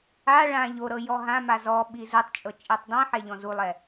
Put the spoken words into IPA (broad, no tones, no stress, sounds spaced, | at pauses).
a ɭ ã ʎ o ɾ ɤ j ɔ ɦ ã m a z ɔ ɓ i z u tˤ t͡ʃʼ ɤ t͡ʃʼ i tˤ dˤ ĩ ħ ɛ ʎ ɔ̃ z u lˠ ɛ